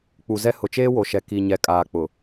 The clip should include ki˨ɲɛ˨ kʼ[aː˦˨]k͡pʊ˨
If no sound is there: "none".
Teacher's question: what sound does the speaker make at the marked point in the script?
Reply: aː˨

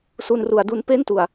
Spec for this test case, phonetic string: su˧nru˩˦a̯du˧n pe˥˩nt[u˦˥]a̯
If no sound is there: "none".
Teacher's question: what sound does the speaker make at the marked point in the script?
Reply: u˨˩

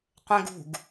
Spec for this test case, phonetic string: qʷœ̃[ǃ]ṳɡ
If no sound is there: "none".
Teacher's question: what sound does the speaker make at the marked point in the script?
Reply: ɡ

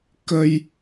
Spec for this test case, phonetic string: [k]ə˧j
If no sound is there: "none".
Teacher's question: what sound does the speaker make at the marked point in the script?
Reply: k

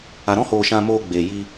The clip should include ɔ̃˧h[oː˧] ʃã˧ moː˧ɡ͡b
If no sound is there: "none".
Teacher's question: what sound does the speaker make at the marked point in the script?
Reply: oː˨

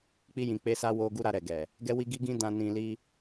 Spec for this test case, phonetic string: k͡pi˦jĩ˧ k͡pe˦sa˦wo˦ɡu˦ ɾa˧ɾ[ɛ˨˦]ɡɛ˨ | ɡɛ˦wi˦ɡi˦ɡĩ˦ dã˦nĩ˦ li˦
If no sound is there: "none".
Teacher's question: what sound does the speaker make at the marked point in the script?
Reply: ɛ˨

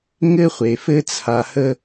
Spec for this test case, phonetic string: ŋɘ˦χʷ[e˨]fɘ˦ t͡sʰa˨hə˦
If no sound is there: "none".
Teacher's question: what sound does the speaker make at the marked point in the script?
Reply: e˨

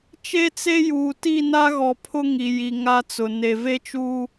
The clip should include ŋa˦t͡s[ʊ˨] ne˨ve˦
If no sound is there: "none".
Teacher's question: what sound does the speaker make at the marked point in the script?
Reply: ʊ˨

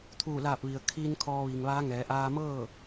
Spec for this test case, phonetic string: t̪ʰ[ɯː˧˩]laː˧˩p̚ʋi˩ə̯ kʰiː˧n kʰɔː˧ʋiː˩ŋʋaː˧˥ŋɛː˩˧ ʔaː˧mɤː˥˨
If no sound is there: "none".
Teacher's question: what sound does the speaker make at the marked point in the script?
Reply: uː˧˩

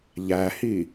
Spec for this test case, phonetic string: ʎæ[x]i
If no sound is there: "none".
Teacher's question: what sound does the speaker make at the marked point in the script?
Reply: h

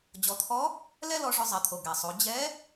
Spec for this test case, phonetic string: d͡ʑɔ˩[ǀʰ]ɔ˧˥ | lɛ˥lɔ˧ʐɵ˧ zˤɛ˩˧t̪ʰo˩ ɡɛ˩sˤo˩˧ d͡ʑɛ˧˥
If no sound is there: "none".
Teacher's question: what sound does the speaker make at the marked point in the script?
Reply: t̪ʰ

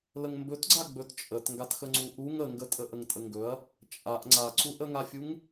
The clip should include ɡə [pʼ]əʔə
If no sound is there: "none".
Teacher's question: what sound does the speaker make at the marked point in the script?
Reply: tʼ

